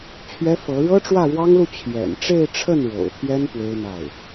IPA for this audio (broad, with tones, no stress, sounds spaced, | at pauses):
t͡ɕʰ ɥ ɛ˥ f ɤ˧˥ ɻ ɤ˥ ʈ͡ʂ w ä˥˩ ɻ w ɑ˥ ŋ l u˥˩ t͡ɕʰ j ɛ̰˨˩ n ʈ͡ʂ e˥˧ ɪ̯ ʈ͡ʂʰ ə˥˩ n ɻ o̰˨˩ ʊ̯ t̪ʰ j ɛ˥ n p w e˥ ɪ̯ n̪ a˥˩ ɪ̯